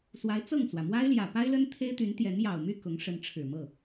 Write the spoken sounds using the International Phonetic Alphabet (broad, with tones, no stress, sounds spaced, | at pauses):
s w a˧˥ ɪ̯ t͡s ɤ˥˩ ŋ t͡s w ä˩ m w a˥ ɪ̯ l j ä˨˩ p a˥ ɪ̯ l ə˥ n t̪ʰ e˥ ɪ̯ t̪ y˧˥ n t̪ j ɛ˧˥ n j ɑ˨˩ ʊ̯ m y˥˩ k ʊ˧˥ ŋ ʂ ə˧˥ n ʈ͡ʂʰ ɻ̩˨˩ m ɤ˥˩